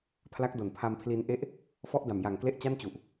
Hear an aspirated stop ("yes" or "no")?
yes